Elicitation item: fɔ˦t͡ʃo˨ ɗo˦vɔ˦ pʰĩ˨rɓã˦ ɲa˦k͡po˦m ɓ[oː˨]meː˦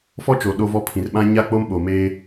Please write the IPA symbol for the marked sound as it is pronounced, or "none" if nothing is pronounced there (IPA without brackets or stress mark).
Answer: o˨